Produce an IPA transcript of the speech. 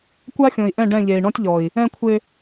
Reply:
kʷ a˦ xʲ õ˨ i̯ ʔ ɛ̃˦˨ ɖ ɛ̃˦˨ ʎ e˨ i̯ ɳ ɔ̃˦ tʲ ʎ ɔ˨ i̯ | ɛ̃˦ kʷʰ ɪ˦

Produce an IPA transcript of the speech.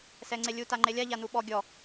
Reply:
s ɛ ŋ͡ǀ e lʲ u t a ŋ͡ǃ e lʲ a ʎ a n u ɓ ɔ ɡʲ ɔ

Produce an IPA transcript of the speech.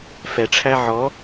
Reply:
f ɛ ʈ͡ʂʰ æ ʕ ɔ

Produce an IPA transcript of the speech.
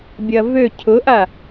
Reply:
bʲ ɐ v ø cʰ ʊ ʔ a

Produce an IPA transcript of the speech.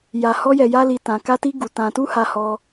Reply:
j a˧ h ɔ˦ j ɛ˧ j a˦ l i˧ t ã˧ k a˦ t i˦ ɡ u˧ t ã˧ t u˦ h a˧ h ɔ˧

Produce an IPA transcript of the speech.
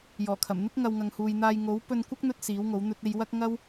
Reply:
j ɔː˨˩ kʰ ɐ˨˩ m n̪ ɪ˥ k̚ ŋ ɐ˨ w ŋ ɐ˨ ŋ h uː˨ j n̪ aː˧ j ŋ o˨˥ w p ɵ˧ n kʷ ɐ˥ k̚ n̪ ɵ˧ t̚ s iː˨˥ w ŋ o˨˥ w n̪ ɵ˧ t̚ e˧ j w ɐ˥ k̚ ŋ ɐ˥ w

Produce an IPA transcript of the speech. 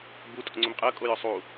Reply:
b u tʼ o̰ ŋ͡ǀ ʏ m qʼ ɐ kʼ o j ʏ sˤ u

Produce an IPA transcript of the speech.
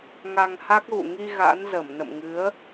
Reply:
ŋ a˧ ŋ h a˦˥ k̚ ɣ ṵ˧˨ ŋ i˧ ɣ a̰˧˥ n z ə˧˩ m n ə̰˧˨ m ŋ ɨ˨˦ ə̯

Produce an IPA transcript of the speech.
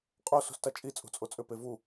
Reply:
qʼ o s ṳ s t a t͡ʃʼ i t͡sʼ ṳ t͡sʼ o t͡sʼ ʏ p e v u

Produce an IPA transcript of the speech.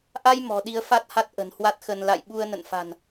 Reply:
ʔ a˧ j m ɔ̤˨˩ ɗ i˨˦ ə̯ f a˦˥ t̚ h a˦˥ t̚ ʔ ə̤˨˩ n h w a˦˥ t̚ x ə˧ n l a̰˧˨ j ɓ u˧ ə̯ n ə̰˧˨ n f a̤˨˩ n

